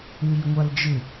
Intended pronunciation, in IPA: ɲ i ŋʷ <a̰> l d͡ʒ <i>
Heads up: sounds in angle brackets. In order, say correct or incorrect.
incorrect, incorrect

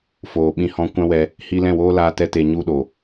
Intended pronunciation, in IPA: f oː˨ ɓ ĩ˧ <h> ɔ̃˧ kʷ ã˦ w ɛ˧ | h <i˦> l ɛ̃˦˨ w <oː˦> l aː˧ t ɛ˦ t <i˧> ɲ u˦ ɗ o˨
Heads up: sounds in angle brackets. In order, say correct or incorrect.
correct, incorrect, correct, incorrect

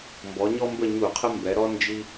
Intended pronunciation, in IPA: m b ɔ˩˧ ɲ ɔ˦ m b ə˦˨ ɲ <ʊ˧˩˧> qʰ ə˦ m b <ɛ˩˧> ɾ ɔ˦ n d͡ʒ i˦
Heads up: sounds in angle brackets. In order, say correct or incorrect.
incorrect, correct

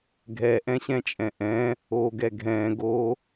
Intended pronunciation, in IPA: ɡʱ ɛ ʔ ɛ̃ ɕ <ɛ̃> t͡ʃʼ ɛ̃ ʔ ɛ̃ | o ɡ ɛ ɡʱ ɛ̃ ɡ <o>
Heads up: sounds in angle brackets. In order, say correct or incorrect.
correct, correct

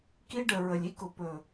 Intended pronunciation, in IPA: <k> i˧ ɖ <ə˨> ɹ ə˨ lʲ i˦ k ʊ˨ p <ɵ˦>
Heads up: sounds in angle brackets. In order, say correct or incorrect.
correct, correct, incorrect

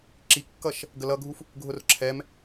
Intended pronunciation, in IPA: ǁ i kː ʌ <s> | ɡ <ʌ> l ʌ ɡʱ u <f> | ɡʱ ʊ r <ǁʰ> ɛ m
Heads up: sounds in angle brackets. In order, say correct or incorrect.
incorrect, incorrect, correct, correct

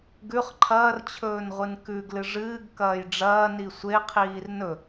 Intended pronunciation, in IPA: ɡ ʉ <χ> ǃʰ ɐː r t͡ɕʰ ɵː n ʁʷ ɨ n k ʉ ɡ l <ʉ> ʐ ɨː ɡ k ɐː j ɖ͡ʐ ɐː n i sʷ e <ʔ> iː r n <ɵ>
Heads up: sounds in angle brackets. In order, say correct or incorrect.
correct, incorrect, incorrect, correct

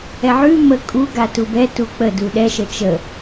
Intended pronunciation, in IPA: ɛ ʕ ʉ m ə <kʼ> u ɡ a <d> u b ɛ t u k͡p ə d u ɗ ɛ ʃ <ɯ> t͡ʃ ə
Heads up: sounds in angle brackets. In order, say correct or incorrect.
correct, incorrect, incorrect

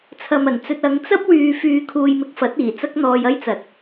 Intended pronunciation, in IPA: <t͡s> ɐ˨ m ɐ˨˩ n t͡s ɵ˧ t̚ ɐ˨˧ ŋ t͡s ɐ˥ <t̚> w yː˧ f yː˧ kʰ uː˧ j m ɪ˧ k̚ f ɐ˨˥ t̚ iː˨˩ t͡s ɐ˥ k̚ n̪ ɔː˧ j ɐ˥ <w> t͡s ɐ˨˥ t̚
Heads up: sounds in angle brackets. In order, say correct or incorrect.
incorrect, incorrect, incorrect

